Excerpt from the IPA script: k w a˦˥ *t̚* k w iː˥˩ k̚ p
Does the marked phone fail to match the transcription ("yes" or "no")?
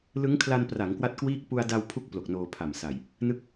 no